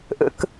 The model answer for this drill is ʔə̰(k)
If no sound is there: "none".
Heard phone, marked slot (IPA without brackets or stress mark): k